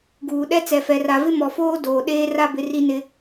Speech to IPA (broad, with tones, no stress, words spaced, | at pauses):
ɡuː˨ ɗɛ˦t͡sɛ˨fɛ˨ ra˨vɪ˦mɔ˨foː˦ doː˨ ɗeː˦ra˦bɪ˨˦ ri˦nɪ˦